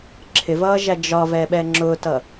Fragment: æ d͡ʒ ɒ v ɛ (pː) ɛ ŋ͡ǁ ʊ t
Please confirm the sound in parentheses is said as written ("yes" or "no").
no